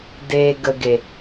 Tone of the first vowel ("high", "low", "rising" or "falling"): low